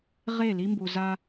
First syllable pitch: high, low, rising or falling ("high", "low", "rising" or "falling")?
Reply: falling